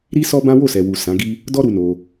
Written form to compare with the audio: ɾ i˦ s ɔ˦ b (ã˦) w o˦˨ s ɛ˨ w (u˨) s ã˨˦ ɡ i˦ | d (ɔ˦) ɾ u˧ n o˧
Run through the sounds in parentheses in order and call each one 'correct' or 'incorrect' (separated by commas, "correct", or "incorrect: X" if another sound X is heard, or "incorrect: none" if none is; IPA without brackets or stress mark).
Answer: correct, correct, correct